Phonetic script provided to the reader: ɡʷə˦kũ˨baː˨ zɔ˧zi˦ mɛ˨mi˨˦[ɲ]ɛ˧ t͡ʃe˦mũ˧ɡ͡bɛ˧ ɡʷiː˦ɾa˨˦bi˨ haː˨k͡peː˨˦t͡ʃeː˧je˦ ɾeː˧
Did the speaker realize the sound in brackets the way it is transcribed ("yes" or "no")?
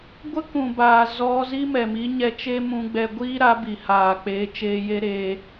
yes